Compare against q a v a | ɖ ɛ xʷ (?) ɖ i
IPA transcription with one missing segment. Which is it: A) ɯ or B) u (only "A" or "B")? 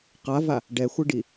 A